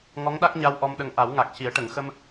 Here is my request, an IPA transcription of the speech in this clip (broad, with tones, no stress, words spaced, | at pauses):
ŋɔ˧˥ŋɗa˦˥k̚ɲa˧w ʔɔ˧mɗə˧ŋ ʔa˨˩˦wŋa˨˩k̚ci˨˩˦ə̯ ʈə˨˩˨ŋxə˧m